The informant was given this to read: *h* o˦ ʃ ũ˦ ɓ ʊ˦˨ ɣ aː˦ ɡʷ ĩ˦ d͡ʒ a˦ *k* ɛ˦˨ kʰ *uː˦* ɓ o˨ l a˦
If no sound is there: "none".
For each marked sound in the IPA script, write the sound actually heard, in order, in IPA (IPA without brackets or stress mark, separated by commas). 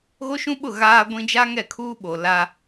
ɣ, ŋ, uː˦